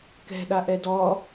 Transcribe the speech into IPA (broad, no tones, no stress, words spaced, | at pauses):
kɛ̤ɗaʔɛ dɔ